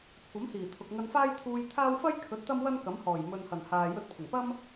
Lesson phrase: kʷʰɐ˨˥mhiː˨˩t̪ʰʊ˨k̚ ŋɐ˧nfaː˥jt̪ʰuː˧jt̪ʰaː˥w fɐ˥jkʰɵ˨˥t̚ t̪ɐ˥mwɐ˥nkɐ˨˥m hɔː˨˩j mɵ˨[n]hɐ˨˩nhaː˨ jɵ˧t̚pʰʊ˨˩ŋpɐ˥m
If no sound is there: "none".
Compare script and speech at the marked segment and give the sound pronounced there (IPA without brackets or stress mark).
n